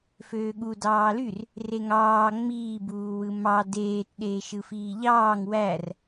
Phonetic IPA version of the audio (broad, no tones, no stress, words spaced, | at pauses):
føːɠu dɑːlyr | reŋɑː ŋ͡miː buːwɯmɑ deːt ɗeːʃɯfiːʎɑːŋ wær